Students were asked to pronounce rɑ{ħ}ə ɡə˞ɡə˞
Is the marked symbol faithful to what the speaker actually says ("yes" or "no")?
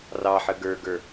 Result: yes